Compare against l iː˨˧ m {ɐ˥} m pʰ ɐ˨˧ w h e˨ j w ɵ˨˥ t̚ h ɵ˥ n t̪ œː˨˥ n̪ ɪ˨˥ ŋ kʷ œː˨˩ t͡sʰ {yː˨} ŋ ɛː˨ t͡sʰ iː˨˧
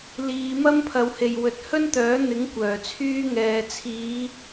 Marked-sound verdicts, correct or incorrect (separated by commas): correct, incorrect